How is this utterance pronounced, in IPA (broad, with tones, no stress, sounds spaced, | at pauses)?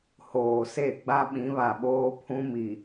h oː˨ s e˦˨ ɡ͡b a˦ ɓ ĩ˨˦ β a˨ ɓ oː˦ pʰ ũ˦ m i˨